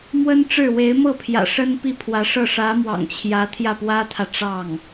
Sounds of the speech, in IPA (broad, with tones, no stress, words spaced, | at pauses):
mwə˥nʈ͡ʂɻ̩˥˩ we˧˥ɪ̯mɤ˥˩pʰjä̰˨˩ ʂə˥n pi˥˩pʰwä˧˥ʂɤ˥˩ ʂä˧˥mwɑ̰˨˩ŋt͡ɕʰjä˧˥ t̪ʰjä˥˩pwä˥t̪ʰä˨ ʈ͡ʂɑ˥˩ŋ